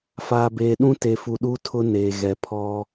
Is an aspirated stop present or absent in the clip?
present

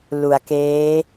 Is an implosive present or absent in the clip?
absent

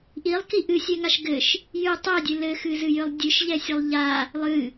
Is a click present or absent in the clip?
absent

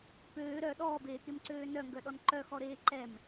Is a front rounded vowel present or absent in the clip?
present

